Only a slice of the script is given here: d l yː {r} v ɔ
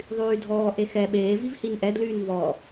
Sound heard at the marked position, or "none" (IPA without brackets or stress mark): n